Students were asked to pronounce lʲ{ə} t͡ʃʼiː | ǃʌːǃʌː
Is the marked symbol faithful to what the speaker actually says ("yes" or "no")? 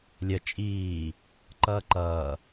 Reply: yes